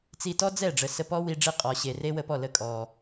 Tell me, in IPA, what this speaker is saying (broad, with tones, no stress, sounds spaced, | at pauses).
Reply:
t͡s i˧ t ɔ˦ d͡z ɛ˦˨ ɖ͡ʐ ə˨ s ə˧ p ɔ˦ w i˧ ɖ͡ʐ i˧ qʼ ɔ˨ ɕ e˨ r e˦ w ə˧ p ɔ˦˨ l ə˧ kʼ ɔ˨